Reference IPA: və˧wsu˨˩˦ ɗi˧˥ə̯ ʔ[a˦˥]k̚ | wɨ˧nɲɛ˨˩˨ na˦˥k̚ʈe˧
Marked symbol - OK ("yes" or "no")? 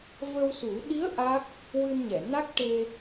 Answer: yes